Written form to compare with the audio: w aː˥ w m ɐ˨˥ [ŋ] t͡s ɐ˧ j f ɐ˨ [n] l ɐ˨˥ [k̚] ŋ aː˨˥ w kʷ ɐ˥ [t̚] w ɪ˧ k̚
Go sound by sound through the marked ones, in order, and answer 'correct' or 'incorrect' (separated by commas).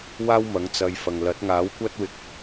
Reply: correct, incorrect, incorrect, correct